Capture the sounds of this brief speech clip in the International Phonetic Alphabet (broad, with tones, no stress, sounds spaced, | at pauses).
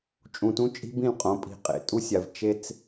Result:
t͡ʃʼ ũ˨ t ũ˦ t͡ʃʼ i̤˦ b ĩ˦˨ l qʼ õ˨˦ pʼ i̤˨ qʼ ḛ˨ tʼ u˦ sʲ a˨ v t͡ʃ e˦ t͡s